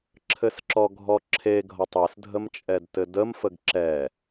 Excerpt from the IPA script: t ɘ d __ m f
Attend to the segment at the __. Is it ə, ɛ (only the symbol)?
ə